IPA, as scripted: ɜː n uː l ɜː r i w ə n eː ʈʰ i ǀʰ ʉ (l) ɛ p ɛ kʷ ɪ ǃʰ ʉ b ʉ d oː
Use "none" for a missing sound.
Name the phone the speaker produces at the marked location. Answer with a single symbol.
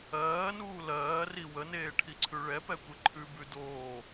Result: ɭ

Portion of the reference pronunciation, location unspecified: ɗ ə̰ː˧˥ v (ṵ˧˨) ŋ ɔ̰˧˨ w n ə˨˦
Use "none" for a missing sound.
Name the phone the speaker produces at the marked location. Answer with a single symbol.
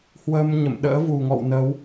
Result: u˨˩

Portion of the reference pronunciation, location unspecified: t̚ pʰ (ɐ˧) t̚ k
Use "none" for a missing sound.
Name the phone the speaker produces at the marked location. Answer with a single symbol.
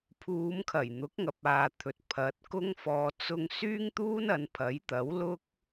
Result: ɐ˨˥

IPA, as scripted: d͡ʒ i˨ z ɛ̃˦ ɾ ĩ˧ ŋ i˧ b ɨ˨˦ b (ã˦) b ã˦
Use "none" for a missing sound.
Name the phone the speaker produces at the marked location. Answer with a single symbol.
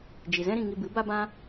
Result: a˦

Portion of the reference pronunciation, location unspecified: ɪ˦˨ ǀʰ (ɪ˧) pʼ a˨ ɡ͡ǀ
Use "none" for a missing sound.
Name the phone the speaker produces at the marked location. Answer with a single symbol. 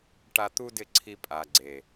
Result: i˧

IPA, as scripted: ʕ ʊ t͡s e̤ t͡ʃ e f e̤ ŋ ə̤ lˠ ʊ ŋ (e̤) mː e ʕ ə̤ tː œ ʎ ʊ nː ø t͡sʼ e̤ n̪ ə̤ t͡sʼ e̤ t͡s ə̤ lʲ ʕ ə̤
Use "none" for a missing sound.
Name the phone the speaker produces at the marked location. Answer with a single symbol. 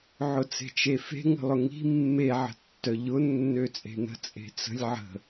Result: i̤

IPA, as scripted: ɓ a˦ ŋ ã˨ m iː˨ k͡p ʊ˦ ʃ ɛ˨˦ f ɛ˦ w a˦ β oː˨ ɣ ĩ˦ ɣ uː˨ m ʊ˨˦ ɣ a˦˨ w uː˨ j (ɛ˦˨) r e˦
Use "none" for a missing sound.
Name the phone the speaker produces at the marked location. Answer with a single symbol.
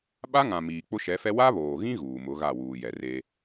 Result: ɛ˨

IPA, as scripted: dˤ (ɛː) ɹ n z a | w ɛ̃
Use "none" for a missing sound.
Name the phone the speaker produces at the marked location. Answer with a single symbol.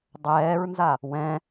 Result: ɛː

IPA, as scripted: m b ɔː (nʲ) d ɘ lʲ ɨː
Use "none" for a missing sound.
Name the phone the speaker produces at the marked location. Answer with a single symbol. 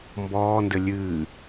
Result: n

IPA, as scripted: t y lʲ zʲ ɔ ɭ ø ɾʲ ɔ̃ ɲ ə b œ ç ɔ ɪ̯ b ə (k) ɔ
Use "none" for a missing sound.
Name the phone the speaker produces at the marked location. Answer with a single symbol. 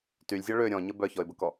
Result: k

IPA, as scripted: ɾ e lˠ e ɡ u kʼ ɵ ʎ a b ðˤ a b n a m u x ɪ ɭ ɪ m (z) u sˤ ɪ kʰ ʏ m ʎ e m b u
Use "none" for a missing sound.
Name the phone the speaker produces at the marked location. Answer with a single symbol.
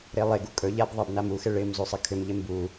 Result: z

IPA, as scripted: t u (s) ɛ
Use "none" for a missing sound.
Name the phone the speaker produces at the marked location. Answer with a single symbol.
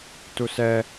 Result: s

